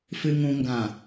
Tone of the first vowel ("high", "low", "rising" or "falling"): low